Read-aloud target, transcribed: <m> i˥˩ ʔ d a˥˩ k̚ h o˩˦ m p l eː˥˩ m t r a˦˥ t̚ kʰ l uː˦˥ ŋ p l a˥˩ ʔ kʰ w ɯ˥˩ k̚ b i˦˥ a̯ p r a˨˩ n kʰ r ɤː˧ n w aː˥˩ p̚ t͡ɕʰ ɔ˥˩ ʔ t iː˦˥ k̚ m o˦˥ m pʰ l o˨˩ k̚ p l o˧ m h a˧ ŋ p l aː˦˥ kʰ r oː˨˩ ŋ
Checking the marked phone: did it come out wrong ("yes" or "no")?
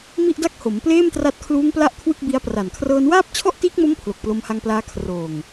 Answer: no